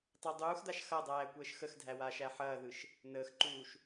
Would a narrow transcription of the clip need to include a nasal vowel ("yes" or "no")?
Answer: no